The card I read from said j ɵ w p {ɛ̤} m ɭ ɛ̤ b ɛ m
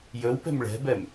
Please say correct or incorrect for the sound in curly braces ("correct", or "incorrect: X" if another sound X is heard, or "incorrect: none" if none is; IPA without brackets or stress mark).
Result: correct